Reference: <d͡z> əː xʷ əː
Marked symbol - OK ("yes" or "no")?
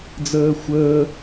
yes